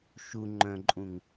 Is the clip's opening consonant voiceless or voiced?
voiceless